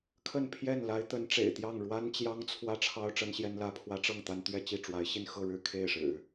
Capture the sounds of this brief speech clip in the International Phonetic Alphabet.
kʰə˥˧npʰjɛ˥˩nla˧˥ɪ̯ t̪ə˧˥nʈ͡ʂḛ˨˩ɪ̯t̪jɑ˥˩ŋ ɻwa˥nt͡ɕjɑ˥ŋt͡sʰwä˥˩ ʈ͡ʂʰɑ˥ʊ̯ ʈ͡ʂə˥nɕjɛ˥nlä˥ pʰwä˧˥ʈ͡ʂɤ˥˩ŋ t̪a˥n t̪ɥɛ˥˧ t͡ɕi˥˩ʈ͡ʂwa˧˥ɪ̯ ɕi˥˧nxɤ˥˧ ɻɻ̩˥˧kʰe˥˩ɪ̯ʂɻ̩˨˩˦

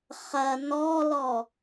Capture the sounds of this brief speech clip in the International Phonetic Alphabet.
χɐ nɔlɔ

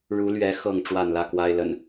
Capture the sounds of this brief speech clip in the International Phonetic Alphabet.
ɻu˨˦lɥɛ˨˦ xɤ˥˨ŋ ʈ͡ʂwa˥˨nlä˥˨kwa˦ɪ̯lə̰˨˩n

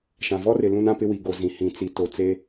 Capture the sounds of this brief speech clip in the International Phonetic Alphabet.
ʃã˨vɔ˦rɪ˨ lũ˦nã˦pɪ˦wi˨ ɡo˨zĩ˨ hĩ˨ t͡si˨to˨t͡se˦

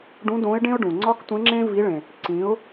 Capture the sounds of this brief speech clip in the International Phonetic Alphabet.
ɖũ˧˥dõ˧˥ɪ̯ɖẽ˥ʊ̯ɖũ˩ ŋ͡ǀɒ˥ktʷẽ˧˥ŋ͡ǁẽ˥ vi˧˥ɭẽ˩ | ǀĩ˩˧ʊ̯

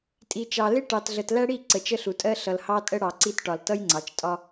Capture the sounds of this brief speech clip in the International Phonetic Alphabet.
tʼi˨ t͡ʃɑ˨lɪ˦ ʈɑ˨tɮə˨t læ˦ɽi˦˨ ǀə˨t͡ʃə˦ɬu˨tʼɜ˦ ɬʌ˨lhɑ˦tʼə˦ ɽɑ˨ǀi˦t ʈɒ˨l tʌ˦jŋ͡ǀɑ˨t͡ʃ tʼɒ˦

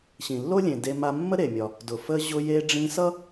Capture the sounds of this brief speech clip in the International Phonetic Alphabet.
ɕĩ˩lːo˥lʲẽ˩ de˧ma˧mːə˥ ɾe˩mʲɒ˩ | dʊ˩fə˧ ʑʊ˧je˧ɖ͡ʐĩ˧sʌ˥

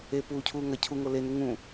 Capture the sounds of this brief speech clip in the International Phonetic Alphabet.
e puːcʰuː ŋɐ cʰuŋo lenu ŋũ

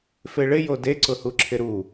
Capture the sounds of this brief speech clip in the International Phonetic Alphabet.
feɭɪjo deǀʊhuǁʰɪ ɾu

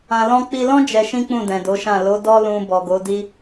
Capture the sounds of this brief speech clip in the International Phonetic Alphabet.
ã˧lɔ̃˦ k͡pi˧lɔ̃˦ d͡ʒɛ˧ʃĩ˦ k͡pũ˦˨dɛ̃˨do˨˦ʃã˦˨ lo˨˦dɔ˦lũ˧ bɔ˨ɡo˨˦di˦

